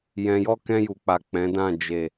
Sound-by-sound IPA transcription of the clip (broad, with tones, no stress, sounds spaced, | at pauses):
j ɛ̃˧ j ɔ˦ k ɛ̃˧ j u˨ k͡p a˨ k͡p ɛ̃˨˦ d ã˦˨ d͡ʒ e˨